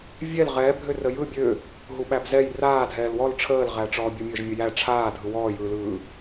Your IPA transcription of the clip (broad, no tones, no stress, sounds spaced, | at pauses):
vʲ ɛ l ʁ ɛː bʱ ø r ə j ɯ bʲ ø | ɦ u ɓ æ b z ɛ j r aː dʱ ɛː l w ɔ l ʈ͡ʂʰ əː l ʁ æ ʈ͡ʂ ɔː bʲ u mʲ əː ʒ mʲ ə j æ ʈ͡ʂʰ aː dʱ ɯ w ɔː j ɯː l ɯː